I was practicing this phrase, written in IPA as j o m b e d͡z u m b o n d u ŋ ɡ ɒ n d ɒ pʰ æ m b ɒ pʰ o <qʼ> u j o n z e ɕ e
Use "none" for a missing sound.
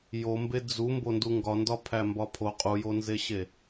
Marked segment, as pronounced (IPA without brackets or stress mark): qʼ